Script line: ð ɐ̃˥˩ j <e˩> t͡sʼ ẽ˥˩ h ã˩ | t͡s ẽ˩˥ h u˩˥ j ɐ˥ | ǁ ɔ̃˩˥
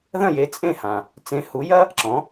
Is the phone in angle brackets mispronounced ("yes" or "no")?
yes